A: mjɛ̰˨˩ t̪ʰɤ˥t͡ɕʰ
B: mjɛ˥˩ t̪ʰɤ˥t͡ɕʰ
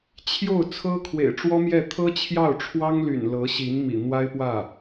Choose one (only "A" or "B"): B